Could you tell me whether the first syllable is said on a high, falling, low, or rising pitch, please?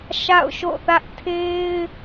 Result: falling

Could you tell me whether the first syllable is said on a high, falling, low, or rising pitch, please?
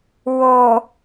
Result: low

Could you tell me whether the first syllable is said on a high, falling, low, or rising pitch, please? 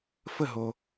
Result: falling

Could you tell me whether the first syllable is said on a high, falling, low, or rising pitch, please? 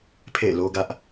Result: falling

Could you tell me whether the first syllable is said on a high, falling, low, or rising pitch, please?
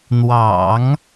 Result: low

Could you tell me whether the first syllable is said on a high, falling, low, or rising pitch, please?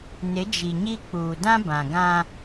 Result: rising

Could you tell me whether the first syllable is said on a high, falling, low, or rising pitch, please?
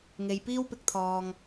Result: low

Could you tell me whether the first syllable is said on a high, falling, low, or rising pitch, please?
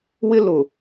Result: high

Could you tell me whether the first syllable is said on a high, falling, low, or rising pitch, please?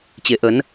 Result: rising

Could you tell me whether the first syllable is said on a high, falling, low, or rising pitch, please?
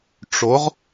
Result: rising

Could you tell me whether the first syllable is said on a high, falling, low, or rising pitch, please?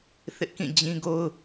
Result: high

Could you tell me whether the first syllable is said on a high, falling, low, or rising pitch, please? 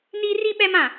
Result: high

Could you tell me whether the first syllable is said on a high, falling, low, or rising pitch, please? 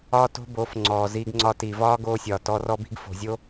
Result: high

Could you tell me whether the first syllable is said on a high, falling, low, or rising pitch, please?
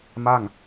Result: falling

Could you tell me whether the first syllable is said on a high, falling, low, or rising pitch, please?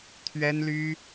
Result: high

